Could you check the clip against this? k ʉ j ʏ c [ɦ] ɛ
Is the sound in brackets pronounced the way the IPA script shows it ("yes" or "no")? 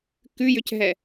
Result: yes